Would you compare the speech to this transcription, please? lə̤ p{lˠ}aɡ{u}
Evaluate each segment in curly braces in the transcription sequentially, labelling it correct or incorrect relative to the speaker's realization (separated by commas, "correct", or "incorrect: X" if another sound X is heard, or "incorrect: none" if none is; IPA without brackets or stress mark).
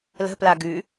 incorrect: l, incorrect: ʉ